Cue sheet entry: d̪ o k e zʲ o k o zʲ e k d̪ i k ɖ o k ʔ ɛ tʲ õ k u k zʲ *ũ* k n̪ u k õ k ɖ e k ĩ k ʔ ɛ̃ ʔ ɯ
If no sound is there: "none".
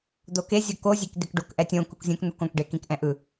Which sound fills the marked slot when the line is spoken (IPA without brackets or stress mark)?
õ